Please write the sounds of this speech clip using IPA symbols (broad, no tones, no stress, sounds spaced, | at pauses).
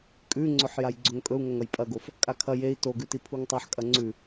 kʼ ʉ ŋ͡ǀ ɵ ħ j a j ɡ͡ǀ ɵ ŋ kʼ ɵ u̯ ŋ ɐ ŋ ɐ j pʼ ɐ ɡ o f | kʼ a kʰ ɐ j e i̯ t o ɡ ʉ t i pʰ u ŋ tˤ a ħ kʼ ɐ ŋ͡ǀ ʉ